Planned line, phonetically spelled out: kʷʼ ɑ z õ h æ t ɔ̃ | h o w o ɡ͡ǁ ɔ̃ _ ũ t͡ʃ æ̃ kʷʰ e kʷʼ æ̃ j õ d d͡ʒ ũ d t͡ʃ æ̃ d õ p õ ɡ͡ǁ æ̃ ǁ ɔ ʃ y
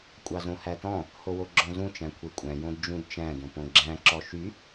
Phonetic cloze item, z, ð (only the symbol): z